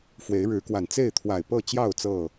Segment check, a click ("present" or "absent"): absent